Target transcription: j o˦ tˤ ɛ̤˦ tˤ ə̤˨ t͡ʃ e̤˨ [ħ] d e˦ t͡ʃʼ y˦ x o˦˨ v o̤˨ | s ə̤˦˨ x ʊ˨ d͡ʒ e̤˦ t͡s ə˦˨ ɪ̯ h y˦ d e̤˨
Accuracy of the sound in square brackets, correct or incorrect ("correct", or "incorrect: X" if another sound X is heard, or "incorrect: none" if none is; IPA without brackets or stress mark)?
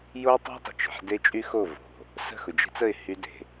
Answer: correct